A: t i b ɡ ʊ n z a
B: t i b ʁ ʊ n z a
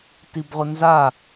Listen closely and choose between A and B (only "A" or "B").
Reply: B